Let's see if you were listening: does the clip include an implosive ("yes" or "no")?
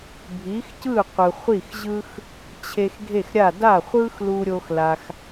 no